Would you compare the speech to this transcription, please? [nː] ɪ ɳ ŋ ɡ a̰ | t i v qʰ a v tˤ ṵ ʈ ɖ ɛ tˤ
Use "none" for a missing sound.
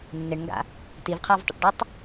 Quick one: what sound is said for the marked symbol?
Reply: nː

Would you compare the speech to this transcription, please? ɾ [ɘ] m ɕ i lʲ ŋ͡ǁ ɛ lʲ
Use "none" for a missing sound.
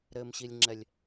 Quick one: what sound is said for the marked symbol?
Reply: ɘ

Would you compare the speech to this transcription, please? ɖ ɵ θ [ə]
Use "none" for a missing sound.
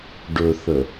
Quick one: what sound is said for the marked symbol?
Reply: ə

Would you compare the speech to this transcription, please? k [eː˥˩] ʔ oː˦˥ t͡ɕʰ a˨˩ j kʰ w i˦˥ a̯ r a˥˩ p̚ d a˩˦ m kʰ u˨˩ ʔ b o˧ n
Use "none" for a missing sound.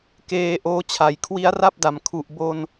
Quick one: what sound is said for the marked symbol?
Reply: eː˧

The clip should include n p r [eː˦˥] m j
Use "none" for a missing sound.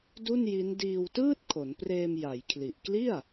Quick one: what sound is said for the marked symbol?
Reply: eː˧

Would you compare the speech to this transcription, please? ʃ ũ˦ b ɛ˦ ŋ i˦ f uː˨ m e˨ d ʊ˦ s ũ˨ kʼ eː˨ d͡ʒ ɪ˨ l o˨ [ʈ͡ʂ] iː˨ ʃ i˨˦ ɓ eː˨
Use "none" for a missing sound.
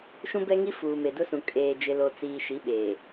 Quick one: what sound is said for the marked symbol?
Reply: t͡s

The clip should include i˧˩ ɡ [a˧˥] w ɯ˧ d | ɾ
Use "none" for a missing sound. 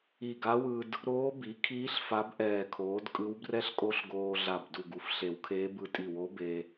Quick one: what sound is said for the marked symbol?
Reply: a˧˥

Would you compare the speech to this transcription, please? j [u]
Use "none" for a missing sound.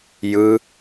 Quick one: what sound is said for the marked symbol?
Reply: ɯ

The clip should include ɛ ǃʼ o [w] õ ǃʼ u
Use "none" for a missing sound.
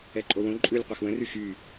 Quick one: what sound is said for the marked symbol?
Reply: w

